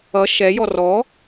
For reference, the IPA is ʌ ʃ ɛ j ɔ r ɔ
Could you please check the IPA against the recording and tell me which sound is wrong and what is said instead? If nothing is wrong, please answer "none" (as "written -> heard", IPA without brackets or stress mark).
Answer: none